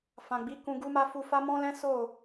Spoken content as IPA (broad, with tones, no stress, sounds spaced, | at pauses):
f ã˨ ɡ͡b i˨˦ k ũ˧ ɡ u˦ m a˦ f u˧ f a˦ m ɔ̃˦ l ɛ̃˦ s o˦˨